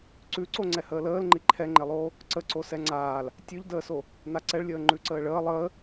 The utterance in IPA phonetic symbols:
ǀʉ ǀoŋ͡ǀɛhəːləːl ŋ͡ǃiǃʰɛŋ͡ǃelˠoː | ǀəǀo sɛŋ͡ǀaːl | tʲʉʎdəːso | naǀɛɭlʲəːŋ͡ǃʉ ǀəːɭəː lˠəː

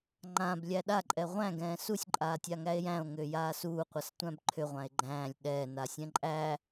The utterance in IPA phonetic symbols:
ŋ͡ǃãblʲæ ɗaǃʼɛ ʁʷæ̃ɡɛ̃ː susʲǃʼaːtʲaŋæe̯ jæ̃o̯ŋʏːjaː suːqʷʌstʷæ̃b ǃʰʏʁʷãe̯ ɡ͡ǃæ̃ːlʲ ɗɛːnasʲɛ̃ ǃʼæ

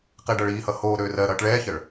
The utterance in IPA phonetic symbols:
qeɖʌɭiːhʌ hoː ɾøːrɜɾʌːʈ ɭɛːçɜɭ

